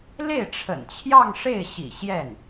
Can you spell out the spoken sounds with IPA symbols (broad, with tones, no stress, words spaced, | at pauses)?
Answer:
le˥˩ɪ̯ʈ͡ʂʰə̰˨˩nt͡ɕʰjɑ˥˧ŋ ʂe˥˩ɪ̯ɕḭ˨˩ ɕjɛ˥˩n